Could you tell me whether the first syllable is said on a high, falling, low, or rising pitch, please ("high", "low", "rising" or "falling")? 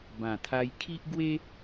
low